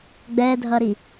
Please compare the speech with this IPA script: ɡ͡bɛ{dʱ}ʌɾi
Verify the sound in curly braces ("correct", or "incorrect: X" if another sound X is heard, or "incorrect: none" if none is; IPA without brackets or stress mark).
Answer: correct